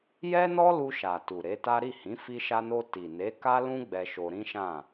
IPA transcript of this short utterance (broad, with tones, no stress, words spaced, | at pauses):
jɛ˦nɔ˦ lu˧ʃa˨ tu˨ ɾe˨˦ta˦ ɾi˦˨hĩ˨˦ fi˧ʃa˧no˧ ti˨ ne˨˦ka˦lũ˦ ɡ͡bɛ˧ʃo˧ɾĩ˦ʃã˦˨